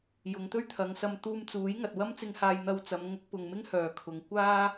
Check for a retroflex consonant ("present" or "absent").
absent